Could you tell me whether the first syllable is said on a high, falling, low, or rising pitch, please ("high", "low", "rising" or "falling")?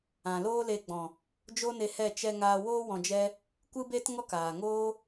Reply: low